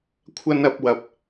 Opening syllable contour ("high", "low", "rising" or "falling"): high